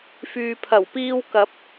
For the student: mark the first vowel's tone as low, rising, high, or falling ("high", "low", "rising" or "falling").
low